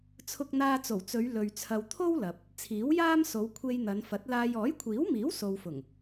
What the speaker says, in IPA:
t͡sʰʊ˧k̚n̪aː˧t͡so˨˩wt͡sɵ˨˧ɥ lɵ˨ɥ t͡sʰɐ˨wt̪ʰo˥w lɐ˨p̚ | t͡sʰiː˨˥wjaː˥mso˨˧w kʷʰe˧jn̪ɐ˨˧nfɐ˨˥t̚laː˧j ɔː˨˥jkʷʰiː˨˥wmiː˨˥w so˨wfʊ˨˩ŋ

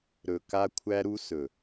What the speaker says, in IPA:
ɾɵ˨ka˦kʷʰæ˦ɾu˦ sɵ˨

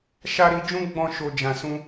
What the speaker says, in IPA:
ʃa˦ɾi˧ d͡ʒũ˦ɡ͡bɔ̃˧ʃo˨ d͡ʒã˨sũ˧

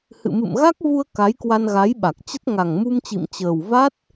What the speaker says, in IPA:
hɨ̰˧˨mɨ̰˧˨m ɣa˦˥k̚vu˧ə̯ ka˨˦jkwa˧n ɣa˨˦jɓa˨˩k̚t͡ɕə˦˥t̚ ŋa˨˩ŋmu˧mt͡ɕḭ˧˨m t͡ɕəː˨˩w va˦˥t̚

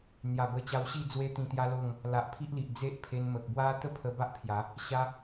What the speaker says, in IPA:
n̪ja˨˩bə˧t͡ɕa˧wɕi˥˧ d͡zwe˦t̪ĩ˧t̪ja˦lo˥˧ŋ | la˨ʔpʰi˦ʔli˨ʔ d͡ze˦ʔpʰe˧nmə˨k̚ bwa˦t̪ə˥˧pʰə˧ ba˦ʔpʰja˨˦ | ɕa˦

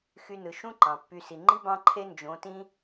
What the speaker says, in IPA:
xy˧nɯ˨ ʃũ˦ ǃɑ̃˨pːy˧ si˨ ŋ͡ǃi˦ bɑ̃˧ǃʰe˧ nd͡ʒõ˨˦tĩ˦

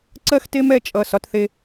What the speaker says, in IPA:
ǀɜ˦xte˦m ɛ˦˨t͡ʃʼʌ˦˨ sɒ˦tθe˦

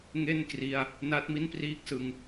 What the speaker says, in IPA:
ŋe˥˩nkri˧a̯ | na˦˥t̚mi˥˩npriː˥˩k̚ sɯ˧ŋ

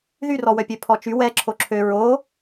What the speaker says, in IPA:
ðyrɔwœpʲø pʰɔt͡ʃy wɛ ǁʰoǁʰø ɹo

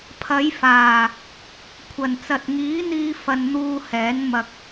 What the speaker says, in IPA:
pʰɐ˨˧j faː˨˩ | kʷʰɐ˨˩nt͡sɐ˨t̚ŋiː˨˥n̪iː˧ fɐ˧nn̪uː˧hɛː˨˥n mɐ˧k̚

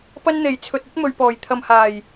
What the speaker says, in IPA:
pɐ˥nn̪e˨j t͡sʰɵ˨t̚ɐ˥t̚ mɵ˨ɥpɔː˨˩j t̪ʰɐ˨mhaː˨˩j

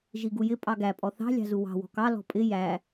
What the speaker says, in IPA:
ʒiɡujɪ pʼɑɡæ pʼɔθɑ̤ lʲɑ̤zuwɑ̤ wɔ̤kɑ lɔ̤pʼɪ jæ

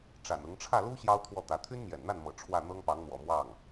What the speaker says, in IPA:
ʈ͡ʂa̰˨˩nʊ˧˥ŋ ʈ͡ʂʰä˥˩lu˥ ɕjɑ˥ʊ̯t̪ʰwɔ˥˩t̪ä˧˥ t̪ʰy˥nmjɛ̰˨˩nn̪a˥˩nmɤ̰˨˩ ʈ͡ʂʰwä˥˩n̪ɤ˥ŋpɑ˧˥ŋn̪wɔ̰˨˩ mwɑ˥˩ŋ

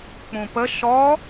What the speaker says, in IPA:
k͡pũpə ʃɔ

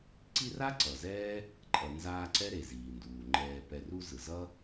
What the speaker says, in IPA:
ǀi˦ra˥ ǀʌ˩zɛː˥ | ǃʼʌ˨nzaː˦ǀɛ˥ ɾe˩ziː˩nduː˩ŋ͡ǃɛː˨ pɛ˨ru˦ zɯ˩zʌ˥

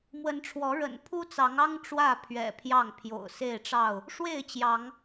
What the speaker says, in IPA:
mwə˨˦nʈ͡ʂʰwɔ˨˦ ɻə̰˨˩npʰu˦t͡sɑ˨˦ŋɑ˦ŋ ʈ͡ʂwä˥˨pʰɥɛ̰˨˩ pʰjɑ˥˨ŋ pʰjo̰˨˩ʊ̯se˥˨ɪ̯ʈ͡ʂɑ˥˨ʊ̯ | ʂwe˥˨ɪ̯t͡ɕjɑ˨˦ŋ

